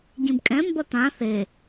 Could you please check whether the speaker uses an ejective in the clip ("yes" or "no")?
yes